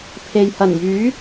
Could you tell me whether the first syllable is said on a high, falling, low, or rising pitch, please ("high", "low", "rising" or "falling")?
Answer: low